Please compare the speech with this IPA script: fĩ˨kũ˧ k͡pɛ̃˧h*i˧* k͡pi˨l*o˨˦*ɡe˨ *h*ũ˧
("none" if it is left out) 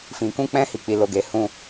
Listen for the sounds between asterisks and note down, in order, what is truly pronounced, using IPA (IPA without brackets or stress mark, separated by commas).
i˨, o˨, h